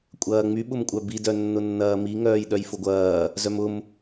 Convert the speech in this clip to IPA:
kʷʼ ɐː ŋ͡m y ɓ ʊ m kʷʼ œ b i d œ nː ʊ nː ɐː m i ŋ œː j ɗ œ j f ʊ ɡʷ ɐː | z œ m ʊ m

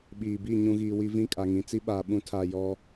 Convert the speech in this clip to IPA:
ɓ iː˨ b i˦˨ ɲ ũ˨ ɣ iː˨ w i˦ v ĩ˦˨ kʼ a˨ ŋ ĩ˨ t͡s i˦ ɓ aː˨ ɓ ũ˦ tʰ a˦˨ j ɔ˦

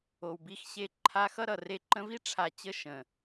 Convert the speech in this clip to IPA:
o˨ w b i˧ x ɕ e˧ ǃʰ a˧ x ʌ˦ ɾ ʌ˨ r e˧ ǃ ə̃˧ v i˦ ʈ͡ʂʰ a˨ t͡ɕ ə˧ ʃ ə̃˨

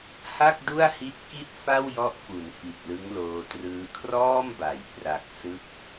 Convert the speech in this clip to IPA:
h a˥˩ k̚ d u˥˩ a̯ h i˦˥ t̚ k i˥˩ t̚ f a˥˩ w j ɔ˦˥ ʔ f u˩˦ n f i˨˩ t̚ l ɯ˦˥ ŋ l oː˧ t r ɯː˦˥ kʰ r ɔː˥˩ m b a˩˦ j p r a˨˩ k̚ s ɯ˦˥ k̚

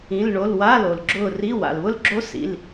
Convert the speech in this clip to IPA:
ĩ˧˥˧ l ɳ o˧˥˧ l w a˧˥˧ l o˨ l ɡ͡ǁ ʊː˦˨ r i˧˥˧ w a̰˨ l β ʊ˦˥ l ɡ͡ǁ o˦˥ s ḭ˧˥˧ l

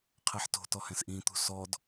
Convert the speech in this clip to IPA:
qʰ e ħ t o̤ t ɔ h ɛ̃ s ʔ ĩ t̪ ṳ s ɔ d

